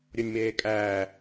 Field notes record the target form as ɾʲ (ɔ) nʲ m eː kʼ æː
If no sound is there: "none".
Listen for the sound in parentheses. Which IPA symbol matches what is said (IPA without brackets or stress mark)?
o